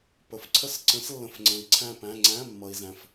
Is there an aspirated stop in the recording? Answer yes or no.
yes